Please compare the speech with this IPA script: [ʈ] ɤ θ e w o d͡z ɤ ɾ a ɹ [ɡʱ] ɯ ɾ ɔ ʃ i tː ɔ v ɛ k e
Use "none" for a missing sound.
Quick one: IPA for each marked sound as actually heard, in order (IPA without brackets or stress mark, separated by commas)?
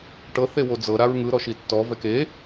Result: ʈ, ŋ